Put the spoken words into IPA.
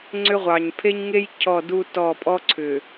ŋ͡ǀ ʏ˦ ʁʷ ɑ˨ ɲ pʰ e˦ ɲ ŋ e˦ j cʰ ɔ˦˨ d u˦ t ɔ˦˨ pʼ ɔ˦ ǀʰ ʏ˨

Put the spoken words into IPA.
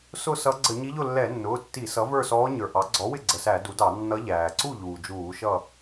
s ʊ˥˨ s ʌ˧˥ ɡ͡ǀ ə˧˩˧ ɲ i˧˥ ʎ ʊ˥˨ lː ɛ˧˩˧ nː ʊː˩˧˩ tː i˧˩˧ s ʌ˩˥ v ə˞˥˨ s ɔː˧˥ ɲ ə˞˩ ʔ ɑ˩˥ ɡ͡ǀ ɔ˩˥ w ɪ˥˨ ɡ͡ǀ ə˩˧˩ s æ˧˩˧ d u˩˥ d ɑ˧˩˧ nː ʌ˧˥ ʎ æː˩ ǀ u˥˨ ʎ uː˩ d͡ʒ uː˧˩˧ ʃ ʌ˥˨

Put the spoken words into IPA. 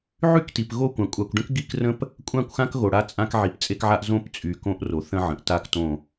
ʕ y˦ k t i˨ p ɣ o˦˨ kʷ ã˨ kʷʼ a˨ kʷ ɖ ə̃˦ k ɡ i˦˨ k r ə̃˦ p | kʷʼ ã˦˨ kʷ x ã˦ k ɣ o˨ ɽ a˦ t͡sʼ ã˦ k ʕ i˨ p t͡sʼ e˦ k ʕ a˦ ʔ z õ˦ p t͡sʼ y˨ k õ˦ ʔ r o˨ θ ə̃˦ ʕ ə̃˨ ʔ t a˦ k t õ˦˨

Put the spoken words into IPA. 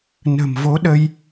n ə̤˨˩ m v o˨˦ ɗ ə˧ j

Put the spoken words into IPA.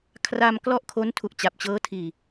kʰ r a˧ m k l ɔ˥˩ ʔ kʰ o˦˥ n tʰ u˨˩ ʔ t͡ɕ a˨˩ p̚ t͡ɕ ɤː˦˥ tʰ iː˨˩

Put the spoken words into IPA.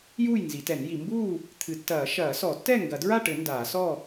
j uː˥˨ j n z i˨˩˦ t ɛ˨˩˦ n j i˨˩˦ m b uː˥˨ | t̪ʰ ɨ˨˩˦ tː ɐː˨˩˦ ʃ ɐː˨˩˦ s ɔ˨˩˦ tː ɛ˥˨ ŋ ɡ ɐ˨˩˦ d ɹ a˥˨ ʈ ɘ˨˩˦ n d aː˨˩˦ s ɔ˥˨

